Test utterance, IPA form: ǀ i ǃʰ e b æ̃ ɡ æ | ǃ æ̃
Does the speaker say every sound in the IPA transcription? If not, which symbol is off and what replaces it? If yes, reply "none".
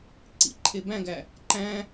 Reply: i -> ḭ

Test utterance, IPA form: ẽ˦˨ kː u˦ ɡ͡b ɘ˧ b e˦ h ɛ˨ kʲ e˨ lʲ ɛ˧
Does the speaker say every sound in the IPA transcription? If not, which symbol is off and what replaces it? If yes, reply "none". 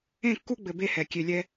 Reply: none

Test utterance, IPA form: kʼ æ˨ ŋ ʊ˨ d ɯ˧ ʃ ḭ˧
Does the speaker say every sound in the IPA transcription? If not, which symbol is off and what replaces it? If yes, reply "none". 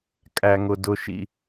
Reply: ɯ˧ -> ʊ˧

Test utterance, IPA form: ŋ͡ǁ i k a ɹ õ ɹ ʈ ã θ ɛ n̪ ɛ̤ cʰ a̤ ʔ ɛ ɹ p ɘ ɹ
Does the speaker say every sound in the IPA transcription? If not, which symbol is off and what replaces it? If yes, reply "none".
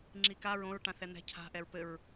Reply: none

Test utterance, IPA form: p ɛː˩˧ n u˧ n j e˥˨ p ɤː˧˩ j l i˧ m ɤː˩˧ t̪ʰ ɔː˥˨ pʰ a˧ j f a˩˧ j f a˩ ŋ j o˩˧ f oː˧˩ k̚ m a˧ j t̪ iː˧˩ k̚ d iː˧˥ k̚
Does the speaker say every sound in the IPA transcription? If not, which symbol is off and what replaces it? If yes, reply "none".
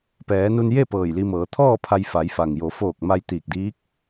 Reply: none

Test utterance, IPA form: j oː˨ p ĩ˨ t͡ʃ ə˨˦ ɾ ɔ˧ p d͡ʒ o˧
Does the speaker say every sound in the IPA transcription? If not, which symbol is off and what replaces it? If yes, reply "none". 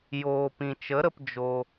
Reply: ɔ˧ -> ə˧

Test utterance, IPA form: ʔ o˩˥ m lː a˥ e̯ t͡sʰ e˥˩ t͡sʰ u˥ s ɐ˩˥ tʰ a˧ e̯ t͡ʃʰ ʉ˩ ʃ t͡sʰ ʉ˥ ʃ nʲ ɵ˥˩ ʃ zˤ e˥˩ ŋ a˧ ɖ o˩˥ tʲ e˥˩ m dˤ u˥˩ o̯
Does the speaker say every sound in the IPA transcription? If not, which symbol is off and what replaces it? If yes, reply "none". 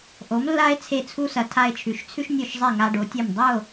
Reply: none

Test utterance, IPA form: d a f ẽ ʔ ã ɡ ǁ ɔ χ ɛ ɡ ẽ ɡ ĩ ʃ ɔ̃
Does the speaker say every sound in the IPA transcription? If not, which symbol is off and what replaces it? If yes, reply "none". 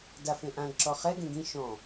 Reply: none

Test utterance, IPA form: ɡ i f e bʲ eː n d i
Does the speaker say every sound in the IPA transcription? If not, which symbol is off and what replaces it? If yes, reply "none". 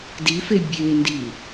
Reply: ɡ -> d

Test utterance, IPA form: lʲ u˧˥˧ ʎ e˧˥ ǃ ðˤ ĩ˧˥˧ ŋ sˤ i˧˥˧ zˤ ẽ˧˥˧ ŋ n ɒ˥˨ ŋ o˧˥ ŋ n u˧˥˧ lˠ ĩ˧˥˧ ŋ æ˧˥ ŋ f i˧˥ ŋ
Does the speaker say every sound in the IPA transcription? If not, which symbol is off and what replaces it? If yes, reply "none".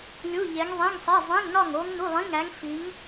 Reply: ǃ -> ŋ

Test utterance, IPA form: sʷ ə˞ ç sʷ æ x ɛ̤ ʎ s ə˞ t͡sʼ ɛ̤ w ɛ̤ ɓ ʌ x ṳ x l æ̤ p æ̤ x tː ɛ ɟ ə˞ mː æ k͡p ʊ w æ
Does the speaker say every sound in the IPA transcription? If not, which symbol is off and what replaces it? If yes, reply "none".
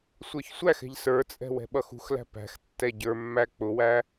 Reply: none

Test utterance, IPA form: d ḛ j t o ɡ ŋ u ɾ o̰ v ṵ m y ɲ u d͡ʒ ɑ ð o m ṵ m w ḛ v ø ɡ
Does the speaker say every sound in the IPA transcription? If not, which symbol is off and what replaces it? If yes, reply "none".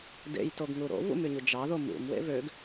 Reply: none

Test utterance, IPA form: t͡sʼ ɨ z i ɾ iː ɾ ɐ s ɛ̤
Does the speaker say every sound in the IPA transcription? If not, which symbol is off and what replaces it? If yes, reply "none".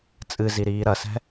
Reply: none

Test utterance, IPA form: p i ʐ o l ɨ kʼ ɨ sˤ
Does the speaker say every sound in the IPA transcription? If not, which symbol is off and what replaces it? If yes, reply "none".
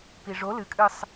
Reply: none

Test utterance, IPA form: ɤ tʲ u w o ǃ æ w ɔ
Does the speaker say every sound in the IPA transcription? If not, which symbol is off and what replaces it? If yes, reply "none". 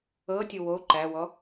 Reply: none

